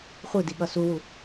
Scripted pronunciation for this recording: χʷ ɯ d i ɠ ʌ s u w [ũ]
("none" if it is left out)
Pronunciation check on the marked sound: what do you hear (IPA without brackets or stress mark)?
u